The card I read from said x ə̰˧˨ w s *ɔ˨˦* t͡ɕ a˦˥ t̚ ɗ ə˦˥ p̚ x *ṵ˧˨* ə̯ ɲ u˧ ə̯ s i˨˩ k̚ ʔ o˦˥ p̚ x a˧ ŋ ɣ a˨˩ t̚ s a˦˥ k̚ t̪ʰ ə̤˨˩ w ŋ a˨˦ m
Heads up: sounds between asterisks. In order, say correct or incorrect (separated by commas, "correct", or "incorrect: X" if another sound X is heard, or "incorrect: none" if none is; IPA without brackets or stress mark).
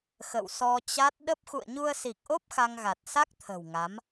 incorrect: ɔ˧, correct